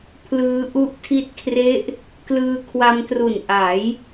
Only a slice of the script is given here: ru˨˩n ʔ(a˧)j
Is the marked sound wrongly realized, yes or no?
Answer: yes